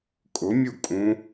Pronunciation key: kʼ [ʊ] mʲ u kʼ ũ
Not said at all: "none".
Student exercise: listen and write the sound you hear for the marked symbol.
ʊ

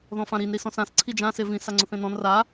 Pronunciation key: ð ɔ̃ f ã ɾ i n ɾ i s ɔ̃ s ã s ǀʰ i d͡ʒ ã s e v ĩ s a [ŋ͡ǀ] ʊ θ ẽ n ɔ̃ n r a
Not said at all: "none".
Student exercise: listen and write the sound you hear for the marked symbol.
ŋ͡ǀ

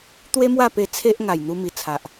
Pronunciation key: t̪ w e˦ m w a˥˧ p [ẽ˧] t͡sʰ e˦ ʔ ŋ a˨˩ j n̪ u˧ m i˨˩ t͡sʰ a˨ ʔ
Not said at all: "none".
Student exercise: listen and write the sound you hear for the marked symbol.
e˧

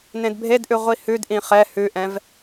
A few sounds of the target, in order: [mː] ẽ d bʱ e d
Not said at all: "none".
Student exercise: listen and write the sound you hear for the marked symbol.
n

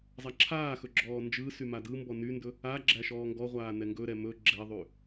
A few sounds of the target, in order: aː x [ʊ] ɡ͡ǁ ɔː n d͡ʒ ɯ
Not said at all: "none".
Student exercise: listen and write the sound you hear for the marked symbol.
ɵ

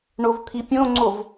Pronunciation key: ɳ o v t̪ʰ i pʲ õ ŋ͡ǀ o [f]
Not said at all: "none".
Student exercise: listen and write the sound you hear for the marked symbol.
v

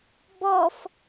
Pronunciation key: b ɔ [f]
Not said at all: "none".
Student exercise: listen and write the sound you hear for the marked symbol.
f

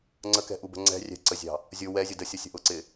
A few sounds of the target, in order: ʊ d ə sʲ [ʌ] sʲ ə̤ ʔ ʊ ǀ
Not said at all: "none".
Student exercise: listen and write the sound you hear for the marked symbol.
ʌ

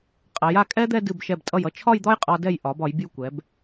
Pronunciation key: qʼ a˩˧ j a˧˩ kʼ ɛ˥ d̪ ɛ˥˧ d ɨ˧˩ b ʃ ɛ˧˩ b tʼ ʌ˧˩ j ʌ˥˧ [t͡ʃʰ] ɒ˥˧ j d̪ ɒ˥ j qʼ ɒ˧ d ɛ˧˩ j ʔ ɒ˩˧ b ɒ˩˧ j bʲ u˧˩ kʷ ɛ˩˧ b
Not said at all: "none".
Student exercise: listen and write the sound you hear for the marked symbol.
t͡ʃʰ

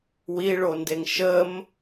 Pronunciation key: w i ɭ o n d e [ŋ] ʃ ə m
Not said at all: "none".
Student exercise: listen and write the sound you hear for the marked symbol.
ŋ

